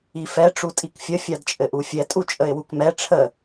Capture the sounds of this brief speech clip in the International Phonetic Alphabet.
i f ɛ ʈ͡ʂ u tʼ i k fʲ ə fʲ a d t͡ʃʼ ɘ ʔ u fʲ ɛ tʼ u t͡ʃʼ ə ɪ̯ w u k m ɛ ʈ͡ʂʰ ə

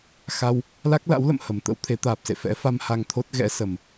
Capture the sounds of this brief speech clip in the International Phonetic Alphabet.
x a˧ w | l a˦˥ k̚ l a̰˧˥ w l ə̰˧˨ m h ə˨˩ m t̪ ə̰˧˥ w t̪ʰ e˨˦ t̪ aː˨˩ p̚ s ḛ˧˨ f ɛ̰˧˥ f a˧ m h a˧ ŋ t̪ʰ o˦˥ t̚ ɣ ɛ̰˧˥ s ə˨˩ m

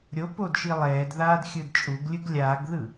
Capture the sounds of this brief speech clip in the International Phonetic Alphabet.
ɾʲ o p o d ʃ i lˠ ɛː d ð aː d xʲ ɯ d t͡ʃʼ u ɡ lʲ ɯ ɡ lʲ aː ɡ ð ɯ

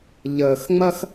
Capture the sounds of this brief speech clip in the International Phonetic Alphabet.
ʎ əː˨ x ŋ͡m ɐ˦ x

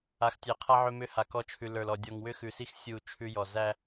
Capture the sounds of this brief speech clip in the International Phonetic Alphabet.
a˨ x tʲ æ˨ qʰ a˦ ʕ ʏ˦ m ʏ˦ h a˨ k ɔ˦ t͡ʃʰ ʉ˨ l ə˞˨ l ɔ˨ dʲ ɔ˨ ŋ w ʏ˦ x ʉ˨ s i˦ x sʲ u˦˨ t͡ʃʰ ʉ˦ j ɔ˨ z æ˦

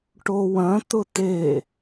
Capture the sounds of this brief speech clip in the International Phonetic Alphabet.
ʈ o w ɐ̃ t̪ ʊ t̪ e

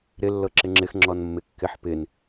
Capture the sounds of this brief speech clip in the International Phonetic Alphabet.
ɾ ɪ lː ɤ ǁ ɪ ŋ͡ǁ ɪ x ŋ͡ǁ ɔ n mː ɪ kː ɪ ħ p ɪ n

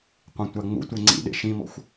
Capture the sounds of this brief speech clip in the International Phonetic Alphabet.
qʷ ĩ tʷ a ŋ͡m ṵ tʷ e ŋ͡ǀ ḭ ɗ ḛ ʃ ĩ m ɔ̰ xʷ

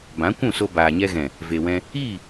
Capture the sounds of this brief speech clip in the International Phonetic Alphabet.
b ã˨˦ kʷ ũ˦˨ s o˧ b aː˨ ɲ ɛ˧ ɣ ɛ̃˨ | v e˨ w ɛ̃˧ | iː˦˨

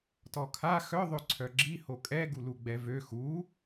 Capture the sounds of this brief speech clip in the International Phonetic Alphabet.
t ɔ kʰ a x œ ðˤ ø ǀʰ œ ɡ͡ǁ i h o kʼ ɛ ɡ u l u ɡ͡b ɛ v ø x u

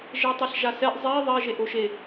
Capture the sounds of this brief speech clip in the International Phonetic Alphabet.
ʒ e tˤ ɛ ɬ ʒ a s ɛ ʔ zˤ e ðˤ ɛ ʒ e ʔ o ʃ e

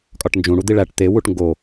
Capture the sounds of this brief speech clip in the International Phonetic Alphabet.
kʼ ɒ ʈ n d͡ʒ ũ ɽ u d̪ i ɭ æ ʈ t̪ e w u ʈ ŋ ɡ o

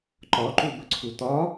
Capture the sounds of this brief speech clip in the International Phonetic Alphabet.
ǃ ɒ ǃ u b ə ǀʰ u t̪ ɒ

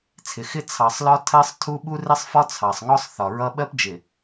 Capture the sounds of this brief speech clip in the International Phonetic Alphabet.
t͡sʰ ɪ˨ x ɪ˦ t͡sʰ ɑ˨ sˤ l ɒ˦ tʰ ɜ˦ sˤ tʰ u˦ ɓ u˦ r ɪ˦ sˤ f ɒ˦ t͡sʰ ɑ˨ sˤ ŋ ɔ˦ sˤ θ ɒ˨ ɹ ʌ˦ ɓ ɜ˦ p d͡ʒ ɪ˨

